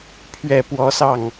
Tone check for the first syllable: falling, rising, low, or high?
low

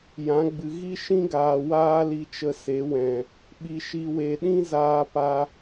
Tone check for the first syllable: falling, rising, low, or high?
rising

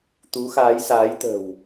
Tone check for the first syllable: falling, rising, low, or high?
rising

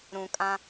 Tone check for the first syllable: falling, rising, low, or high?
low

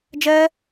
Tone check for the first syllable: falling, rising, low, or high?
high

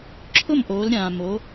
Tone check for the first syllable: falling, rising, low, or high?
falling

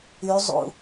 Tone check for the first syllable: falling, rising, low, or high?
rising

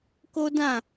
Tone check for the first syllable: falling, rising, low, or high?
high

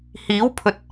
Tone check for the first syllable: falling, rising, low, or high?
rising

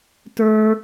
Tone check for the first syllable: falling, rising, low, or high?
high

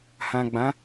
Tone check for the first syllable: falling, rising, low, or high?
low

